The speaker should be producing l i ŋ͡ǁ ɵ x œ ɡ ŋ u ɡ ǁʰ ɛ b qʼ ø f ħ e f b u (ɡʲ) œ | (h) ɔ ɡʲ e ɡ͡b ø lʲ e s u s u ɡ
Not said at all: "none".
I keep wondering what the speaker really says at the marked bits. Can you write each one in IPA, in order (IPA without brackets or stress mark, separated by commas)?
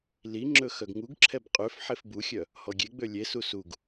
xʲ, h